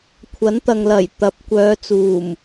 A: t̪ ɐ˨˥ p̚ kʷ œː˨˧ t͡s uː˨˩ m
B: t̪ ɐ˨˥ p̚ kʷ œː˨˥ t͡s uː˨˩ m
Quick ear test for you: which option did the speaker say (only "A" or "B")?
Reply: A